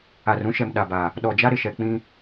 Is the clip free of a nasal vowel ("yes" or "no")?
no